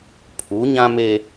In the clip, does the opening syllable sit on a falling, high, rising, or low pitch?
rising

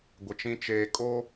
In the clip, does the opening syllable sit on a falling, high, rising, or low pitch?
low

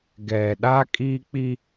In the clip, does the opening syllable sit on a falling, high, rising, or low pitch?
low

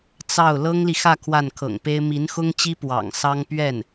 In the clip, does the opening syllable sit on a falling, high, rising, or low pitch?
falling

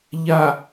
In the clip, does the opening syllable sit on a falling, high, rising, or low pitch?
low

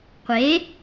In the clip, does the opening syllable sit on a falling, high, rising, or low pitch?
rising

